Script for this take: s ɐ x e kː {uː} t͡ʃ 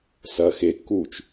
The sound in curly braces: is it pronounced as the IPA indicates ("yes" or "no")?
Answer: yes